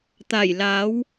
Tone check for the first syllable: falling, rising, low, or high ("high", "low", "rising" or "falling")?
low